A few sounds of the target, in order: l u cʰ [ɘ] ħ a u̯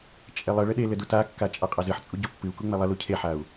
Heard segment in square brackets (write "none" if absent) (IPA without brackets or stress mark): e